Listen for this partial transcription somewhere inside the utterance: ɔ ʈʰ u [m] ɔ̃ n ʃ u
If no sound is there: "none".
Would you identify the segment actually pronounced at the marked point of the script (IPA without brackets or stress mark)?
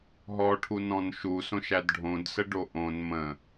n